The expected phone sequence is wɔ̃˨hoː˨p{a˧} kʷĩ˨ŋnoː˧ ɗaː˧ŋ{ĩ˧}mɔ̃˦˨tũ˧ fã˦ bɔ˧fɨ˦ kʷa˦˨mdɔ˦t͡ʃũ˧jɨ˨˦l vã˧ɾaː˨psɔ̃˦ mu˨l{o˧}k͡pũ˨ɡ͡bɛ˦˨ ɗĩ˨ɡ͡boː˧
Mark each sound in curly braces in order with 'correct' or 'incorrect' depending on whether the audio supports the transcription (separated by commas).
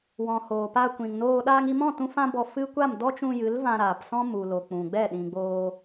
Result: correct, incorrect, incorrect